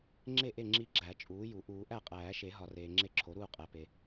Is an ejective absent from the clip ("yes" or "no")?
no